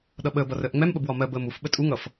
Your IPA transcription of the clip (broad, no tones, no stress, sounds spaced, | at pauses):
ɗ ʌ ɓ əː b ʌ r əː ʔ ŋ͡m ɛ m ɓ ə b w ɒ m ɜ b əː m u f ɓ ə tʼ u ŋ ʌ f